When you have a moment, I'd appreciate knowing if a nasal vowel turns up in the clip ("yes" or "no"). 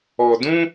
yes